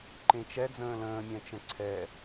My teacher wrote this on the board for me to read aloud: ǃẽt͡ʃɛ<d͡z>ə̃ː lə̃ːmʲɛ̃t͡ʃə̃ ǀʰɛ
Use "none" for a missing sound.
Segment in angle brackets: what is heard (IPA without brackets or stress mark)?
d͡z